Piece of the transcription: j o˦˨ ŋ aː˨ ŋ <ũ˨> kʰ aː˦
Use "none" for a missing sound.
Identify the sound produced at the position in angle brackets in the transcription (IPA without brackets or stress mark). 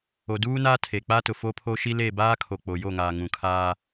ũ˨